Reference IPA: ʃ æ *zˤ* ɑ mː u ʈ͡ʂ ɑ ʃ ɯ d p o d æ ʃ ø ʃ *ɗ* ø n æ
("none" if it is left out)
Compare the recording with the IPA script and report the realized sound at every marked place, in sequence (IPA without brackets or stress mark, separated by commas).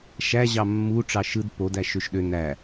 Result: ʑ, ɗ